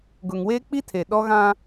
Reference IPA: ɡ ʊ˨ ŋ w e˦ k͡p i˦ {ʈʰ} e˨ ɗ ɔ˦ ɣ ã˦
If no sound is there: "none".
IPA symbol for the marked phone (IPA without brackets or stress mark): tʰ